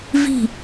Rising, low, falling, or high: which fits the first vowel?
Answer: falling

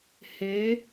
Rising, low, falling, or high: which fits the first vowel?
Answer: rising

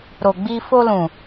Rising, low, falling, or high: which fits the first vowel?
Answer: low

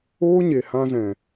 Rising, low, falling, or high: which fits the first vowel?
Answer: high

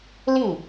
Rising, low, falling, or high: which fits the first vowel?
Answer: falling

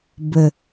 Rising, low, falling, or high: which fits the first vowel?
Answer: low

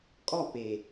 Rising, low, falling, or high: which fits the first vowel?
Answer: falling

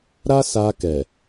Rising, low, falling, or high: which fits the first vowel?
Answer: high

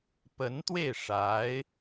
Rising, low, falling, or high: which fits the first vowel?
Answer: rising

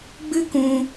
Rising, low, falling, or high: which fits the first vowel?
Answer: high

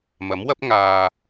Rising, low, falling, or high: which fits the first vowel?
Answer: rising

